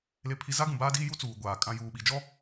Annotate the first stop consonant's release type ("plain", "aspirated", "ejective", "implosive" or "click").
aspirated